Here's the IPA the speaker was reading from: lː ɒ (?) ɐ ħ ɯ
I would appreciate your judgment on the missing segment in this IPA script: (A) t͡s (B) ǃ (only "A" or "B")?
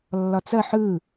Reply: A